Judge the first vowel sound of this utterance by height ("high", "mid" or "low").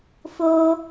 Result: mid